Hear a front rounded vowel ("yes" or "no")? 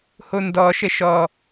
no